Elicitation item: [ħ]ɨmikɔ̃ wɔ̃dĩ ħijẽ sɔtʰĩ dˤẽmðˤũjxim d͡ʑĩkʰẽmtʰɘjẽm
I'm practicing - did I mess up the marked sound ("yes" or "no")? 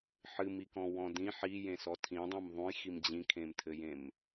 no